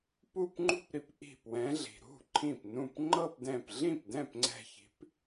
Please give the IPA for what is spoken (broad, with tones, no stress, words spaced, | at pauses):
pu˥˧pŋ͡ǃṳ˥˧pɾi˨˦p ʔi̤˧˩pwɛ̃˨˦ɮi̤˩ ɾṳ˥˩ǃʰĩ˧˩pnũ˧˩p ŋ͡ǃɤ˥˧pdɛ̃˧˩p ɮĩ˥˩pdɛ̃˥˩pŋ͡ǀɛ̤˧˩çi̤˨˦p